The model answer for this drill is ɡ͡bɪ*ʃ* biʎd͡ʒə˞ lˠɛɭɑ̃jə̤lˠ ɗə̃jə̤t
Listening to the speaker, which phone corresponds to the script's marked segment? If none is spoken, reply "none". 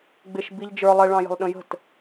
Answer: ʃ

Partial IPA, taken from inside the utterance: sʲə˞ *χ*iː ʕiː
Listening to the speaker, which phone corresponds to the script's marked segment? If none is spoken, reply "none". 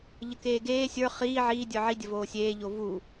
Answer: χ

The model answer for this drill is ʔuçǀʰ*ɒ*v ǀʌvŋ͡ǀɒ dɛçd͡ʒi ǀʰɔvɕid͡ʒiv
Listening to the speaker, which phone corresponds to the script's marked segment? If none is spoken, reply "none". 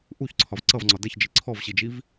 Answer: ɒ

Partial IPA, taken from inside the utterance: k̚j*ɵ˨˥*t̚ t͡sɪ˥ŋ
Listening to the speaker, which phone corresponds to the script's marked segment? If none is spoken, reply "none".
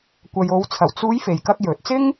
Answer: ɵ˨˥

